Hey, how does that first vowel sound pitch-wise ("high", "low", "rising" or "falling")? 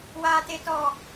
high